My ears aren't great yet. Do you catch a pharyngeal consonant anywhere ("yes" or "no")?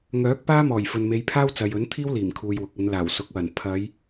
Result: no